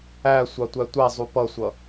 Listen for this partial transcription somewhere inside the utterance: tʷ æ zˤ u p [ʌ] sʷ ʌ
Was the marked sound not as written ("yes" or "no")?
no